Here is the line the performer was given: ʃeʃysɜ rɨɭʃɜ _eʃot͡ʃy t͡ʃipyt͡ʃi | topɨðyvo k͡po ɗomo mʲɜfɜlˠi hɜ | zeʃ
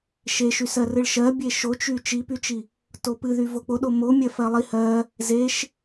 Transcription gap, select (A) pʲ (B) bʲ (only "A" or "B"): B